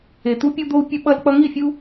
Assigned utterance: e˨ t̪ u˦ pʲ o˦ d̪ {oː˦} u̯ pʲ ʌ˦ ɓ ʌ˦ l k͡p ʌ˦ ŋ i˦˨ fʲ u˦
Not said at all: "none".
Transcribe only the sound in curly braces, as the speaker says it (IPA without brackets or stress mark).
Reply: o˦